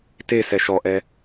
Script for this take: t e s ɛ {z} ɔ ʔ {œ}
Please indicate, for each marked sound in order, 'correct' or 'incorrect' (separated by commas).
incorrect, incorrect